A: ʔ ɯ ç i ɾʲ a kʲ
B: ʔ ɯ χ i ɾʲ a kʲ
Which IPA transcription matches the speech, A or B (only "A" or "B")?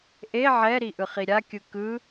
B